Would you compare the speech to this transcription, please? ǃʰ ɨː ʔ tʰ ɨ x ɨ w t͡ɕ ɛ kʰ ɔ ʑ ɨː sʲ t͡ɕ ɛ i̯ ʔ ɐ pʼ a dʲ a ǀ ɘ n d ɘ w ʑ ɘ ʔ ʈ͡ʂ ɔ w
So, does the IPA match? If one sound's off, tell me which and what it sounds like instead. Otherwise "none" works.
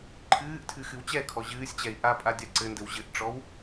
ɐ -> a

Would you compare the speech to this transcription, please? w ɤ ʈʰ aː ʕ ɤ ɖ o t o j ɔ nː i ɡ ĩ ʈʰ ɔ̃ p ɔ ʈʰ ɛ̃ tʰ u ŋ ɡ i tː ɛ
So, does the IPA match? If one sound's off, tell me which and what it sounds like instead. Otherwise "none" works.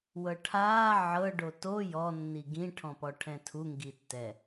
none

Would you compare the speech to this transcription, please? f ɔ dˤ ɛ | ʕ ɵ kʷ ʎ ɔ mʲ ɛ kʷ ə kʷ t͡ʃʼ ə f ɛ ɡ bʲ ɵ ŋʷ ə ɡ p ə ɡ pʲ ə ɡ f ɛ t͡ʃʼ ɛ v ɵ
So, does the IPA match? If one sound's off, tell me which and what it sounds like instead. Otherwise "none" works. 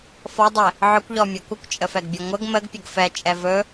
p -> m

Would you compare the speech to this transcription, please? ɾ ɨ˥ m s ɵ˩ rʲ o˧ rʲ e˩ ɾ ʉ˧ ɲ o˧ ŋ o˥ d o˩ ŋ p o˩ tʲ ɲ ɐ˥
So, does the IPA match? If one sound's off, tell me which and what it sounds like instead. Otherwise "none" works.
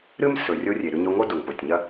none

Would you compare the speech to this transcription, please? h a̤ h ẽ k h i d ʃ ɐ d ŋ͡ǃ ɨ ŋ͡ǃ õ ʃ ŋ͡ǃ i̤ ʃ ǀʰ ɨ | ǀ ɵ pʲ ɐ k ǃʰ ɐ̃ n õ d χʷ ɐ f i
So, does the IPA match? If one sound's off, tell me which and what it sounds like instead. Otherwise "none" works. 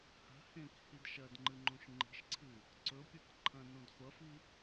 none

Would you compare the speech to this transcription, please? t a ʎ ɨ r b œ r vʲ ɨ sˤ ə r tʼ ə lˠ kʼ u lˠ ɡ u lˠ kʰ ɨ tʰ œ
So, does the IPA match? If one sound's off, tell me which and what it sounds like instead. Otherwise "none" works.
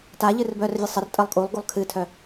none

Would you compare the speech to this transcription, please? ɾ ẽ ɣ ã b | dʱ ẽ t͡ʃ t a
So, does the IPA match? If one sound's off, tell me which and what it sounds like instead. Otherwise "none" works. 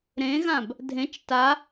none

